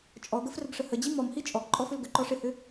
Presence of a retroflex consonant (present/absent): present